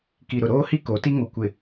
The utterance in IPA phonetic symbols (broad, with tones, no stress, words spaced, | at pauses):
ki˨ɾʊ˨ ɾoː˦hi˦ ko˨˦ti˦ŋo˨ kʷɪ˨